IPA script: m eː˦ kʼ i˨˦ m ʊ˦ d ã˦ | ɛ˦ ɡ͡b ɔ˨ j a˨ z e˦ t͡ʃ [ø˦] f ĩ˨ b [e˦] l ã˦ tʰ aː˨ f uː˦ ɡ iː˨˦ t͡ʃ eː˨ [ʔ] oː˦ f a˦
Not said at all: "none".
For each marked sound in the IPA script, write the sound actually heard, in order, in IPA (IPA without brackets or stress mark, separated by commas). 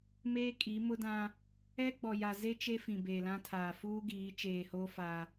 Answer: e˦, e˨, h